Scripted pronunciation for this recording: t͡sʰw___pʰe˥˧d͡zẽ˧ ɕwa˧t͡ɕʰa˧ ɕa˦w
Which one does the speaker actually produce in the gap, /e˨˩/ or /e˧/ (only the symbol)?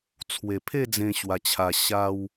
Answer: e˨˩